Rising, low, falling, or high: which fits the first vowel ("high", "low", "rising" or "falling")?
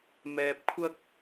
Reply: low